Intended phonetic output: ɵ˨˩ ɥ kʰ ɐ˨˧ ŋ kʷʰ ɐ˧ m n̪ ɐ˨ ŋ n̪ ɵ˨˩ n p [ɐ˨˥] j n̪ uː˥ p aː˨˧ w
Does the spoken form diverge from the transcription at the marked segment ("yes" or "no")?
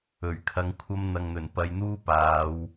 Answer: yes